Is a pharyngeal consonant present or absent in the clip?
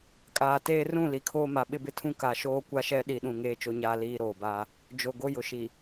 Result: absent